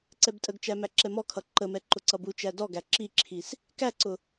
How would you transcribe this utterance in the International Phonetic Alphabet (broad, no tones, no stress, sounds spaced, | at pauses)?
ǀ ɛ b tʼ ə ɡ t͡ʃ æ m æ ǁ ɛ m ɔ kʰ ʌ ǃ ə m ɛ ǃ ʊ ǀ ʌ b u t͡ʃ æ d ɔ ɡ æ ǁ i ǁʰ i s | k æ ǀ ʊ